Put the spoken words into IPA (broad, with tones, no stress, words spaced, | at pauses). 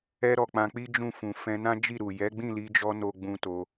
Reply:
ɛ˧ɾɔ˨ k͡pã˧k͡pi˦ d͡ʒũ˦˨fũ˨ fɛ̃˧nã˦d͡ʒi˦˨ɾu˨ jɛ˨˦ɡ͡bĩ˦˨li˧d͡ʒɔ˧ no˦ɡ͡bũ˦to˧